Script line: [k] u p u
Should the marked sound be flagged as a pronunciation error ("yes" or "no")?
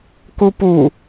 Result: no